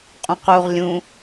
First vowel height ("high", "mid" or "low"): high